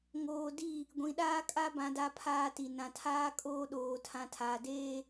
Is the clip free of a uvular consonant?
yes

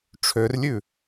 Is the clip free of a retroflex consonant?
no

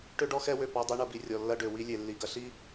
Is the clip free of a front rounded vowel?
no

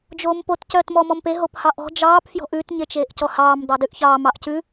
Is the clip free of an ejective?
yes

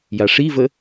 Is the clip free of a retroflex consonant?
no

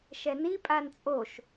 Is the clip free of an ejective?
no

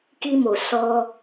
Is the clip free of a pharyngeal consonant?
yes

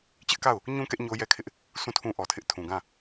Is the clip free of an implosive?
yes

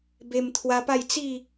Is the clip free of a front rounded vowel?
yes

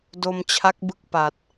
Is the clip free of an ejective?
yes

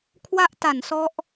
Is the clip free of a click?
yes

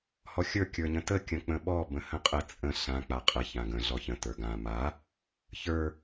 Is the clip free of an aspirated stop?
yes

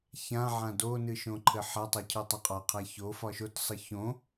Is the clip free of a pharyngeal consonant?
no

